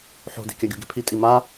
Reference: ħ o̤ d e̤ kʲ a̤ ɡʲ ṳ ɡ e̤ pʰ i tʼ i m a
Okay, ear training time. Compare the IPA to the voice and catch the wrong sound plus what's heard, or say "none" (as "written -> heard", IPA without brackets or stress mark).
a̤ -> a